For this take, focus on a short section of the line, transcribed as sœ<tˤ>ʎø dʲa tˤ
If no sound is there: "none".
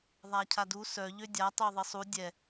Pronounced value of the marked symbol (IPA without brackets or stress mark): none